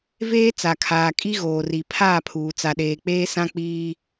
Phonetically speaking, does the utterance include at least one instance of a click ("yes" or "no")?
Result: no